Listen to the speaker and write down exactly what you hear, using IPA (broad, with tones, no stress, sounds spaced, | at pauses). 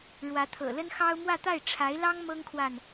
ɻ w ä˧˥ t̪ʰ ɤ̰˨˩ l ə˥ n x ɑ˥ ʊ̯ m w ä˥˧ t̪ a˥˩ ɪ̯ ʈ͡ʂʰ a˧˥ ɪ̯ l ɑ˥ ŋ m ɤ˥ ŋ kʰ w a˨ n